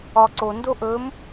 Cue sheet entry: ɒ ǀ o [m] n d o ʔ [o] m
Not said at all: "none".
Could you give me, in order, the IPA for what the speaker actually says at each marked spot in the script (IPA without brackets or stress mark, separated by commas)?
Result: none, ɵ